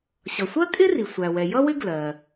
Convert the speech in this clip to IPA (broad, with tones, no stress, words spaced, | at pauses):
ɕʌ˩sʷɜ˥kʼɪ˥ri˩ sʷæ˩wɛ˩jʌ˥wɪ˥ ɡlɜ˩